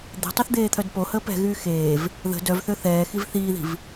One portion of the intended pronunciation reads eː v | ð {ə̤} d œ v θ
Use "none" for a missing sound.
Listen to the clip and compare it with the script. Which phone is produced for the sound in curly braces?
ə̤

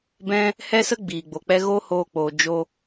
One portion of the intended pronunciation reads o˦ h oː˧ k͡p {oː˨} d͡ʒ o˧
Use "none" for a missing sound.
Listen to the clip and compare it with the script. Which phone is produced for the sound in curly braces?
oː˨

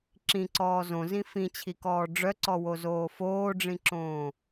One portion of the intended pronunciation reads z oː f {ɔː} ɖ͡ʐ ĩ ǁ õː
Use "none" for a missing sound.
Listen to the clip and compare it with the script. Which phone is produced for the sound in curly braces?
oː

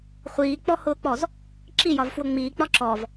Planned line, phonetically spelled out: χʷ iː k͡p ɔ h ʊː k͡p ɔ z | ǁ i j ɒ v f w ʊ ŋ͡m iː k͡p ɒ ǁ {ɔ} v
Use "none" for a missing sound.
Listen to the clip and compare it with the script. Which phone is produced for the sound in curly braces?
ɔ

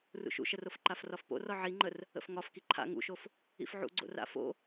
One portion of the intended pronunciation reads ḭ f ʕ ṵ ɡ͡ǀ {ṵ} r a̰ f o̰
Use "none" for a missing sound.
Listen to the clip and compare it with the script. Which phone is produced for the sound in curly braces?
o̰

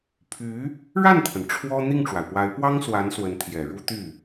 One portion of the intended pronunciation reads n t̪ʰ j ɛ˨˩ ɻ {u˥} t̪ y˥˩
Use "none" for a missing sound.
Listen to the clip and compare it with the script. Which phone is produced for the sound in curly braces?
u˥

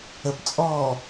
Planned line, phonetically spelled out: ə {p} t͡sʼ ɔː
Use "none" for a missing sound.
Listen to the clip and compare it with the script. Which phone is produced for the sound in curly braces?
p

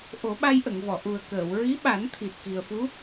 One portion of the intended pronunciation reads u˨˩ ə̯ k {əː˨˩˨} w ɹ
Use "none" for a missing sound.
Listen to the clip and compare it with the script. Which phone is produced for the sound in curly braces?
əː˨˩˨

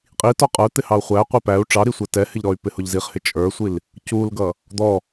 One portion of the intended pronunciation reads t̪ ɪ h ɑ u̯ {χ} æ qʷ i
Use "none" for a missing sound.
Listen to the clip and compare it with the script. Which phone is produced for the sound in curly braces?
χʷ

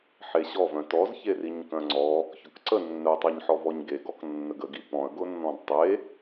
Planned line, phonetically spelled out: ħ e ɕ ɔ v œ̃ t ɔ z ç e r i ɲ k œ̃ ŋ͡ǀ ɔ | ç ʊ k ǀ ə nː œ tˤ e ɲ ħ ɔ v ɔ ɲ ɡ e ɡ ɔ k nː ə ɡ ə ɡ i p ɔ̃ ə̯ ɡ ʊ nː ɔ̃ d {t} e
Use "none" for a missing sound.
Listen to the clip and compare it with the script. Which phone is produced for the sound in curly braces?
tˤ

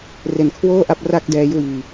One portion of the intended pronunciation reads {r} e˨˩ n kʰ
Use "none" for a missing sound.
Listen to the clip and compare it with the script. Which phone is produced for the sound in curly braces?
r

